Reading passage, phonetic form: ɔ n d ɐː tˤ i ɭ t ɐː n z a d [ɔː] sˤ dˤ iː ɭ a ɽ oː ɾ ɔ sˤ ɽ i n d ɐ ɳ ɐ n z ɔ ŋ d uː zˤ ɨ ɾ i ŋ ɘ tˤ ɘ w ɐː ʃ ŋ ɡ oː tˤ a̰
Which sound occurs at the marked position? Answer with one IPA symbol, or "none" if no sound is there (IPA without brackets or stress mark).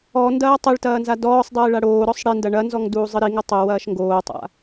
ɔː